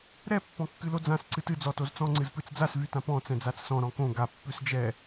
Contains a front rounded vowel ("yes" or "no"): yes